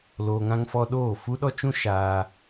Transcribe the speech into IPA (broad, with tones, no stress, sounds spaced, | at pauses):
l oː˧ ŋ ã˦ ŋ f ɔ˦ ɗ oː˦˨ f u˦ ɗ ɔ˦ t͡ʃ ũ˦ ʃ aː˧